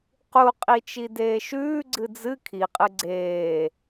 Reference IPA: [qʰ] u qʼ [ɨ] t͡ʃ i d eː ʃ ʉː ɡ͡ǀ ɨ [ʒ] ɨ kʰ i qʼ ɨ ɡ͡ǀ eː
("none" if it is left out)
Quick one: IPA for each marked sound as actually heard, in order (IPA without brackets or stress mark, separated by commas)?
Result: q, i, d͡z